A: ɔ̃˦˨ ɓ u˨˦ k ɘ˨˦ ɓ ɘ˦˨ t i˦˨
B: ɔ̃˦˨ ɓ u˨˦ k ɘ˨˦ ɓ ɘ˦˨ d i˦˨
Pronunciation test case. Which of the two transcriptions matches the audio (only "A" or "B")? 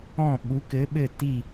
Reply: A